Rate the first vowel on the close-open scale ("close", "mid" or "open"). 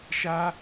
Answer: open